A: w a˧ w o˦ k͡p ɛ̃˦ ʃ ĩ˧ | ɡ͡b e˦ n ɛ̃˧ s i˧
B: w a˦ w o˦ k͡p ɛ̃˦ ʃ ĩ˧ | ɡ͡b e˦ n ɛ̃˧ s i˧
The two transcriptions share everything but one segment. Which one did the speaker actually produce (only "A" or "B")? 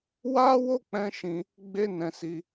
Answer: B